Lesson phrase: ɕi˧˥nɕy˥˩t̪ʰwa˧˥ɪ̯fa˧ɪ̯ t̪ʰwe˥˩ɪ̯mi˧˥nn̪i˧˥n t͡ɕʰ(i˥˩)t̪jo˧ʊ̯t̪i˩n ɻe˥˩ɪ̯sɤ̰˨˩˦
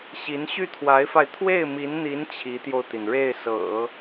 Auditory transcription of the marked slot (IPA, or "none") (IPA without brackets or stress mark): i˧˥